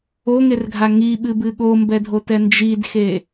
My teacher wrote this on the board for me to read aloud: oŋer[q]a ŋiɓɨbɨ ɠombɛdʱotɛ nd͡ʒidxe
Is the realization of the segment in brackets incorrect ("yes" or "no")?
yes